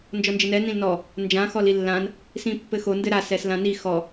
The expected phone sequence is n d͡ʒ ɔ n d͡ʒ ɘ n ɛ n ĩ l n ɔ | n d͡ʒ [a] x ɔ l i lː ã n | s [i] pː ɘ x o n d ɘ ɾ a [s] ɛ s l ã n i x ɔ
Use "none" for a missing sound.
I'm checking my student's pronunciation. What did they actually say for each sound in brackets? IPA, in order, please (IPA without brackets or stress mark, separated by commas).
ã, ĩ, s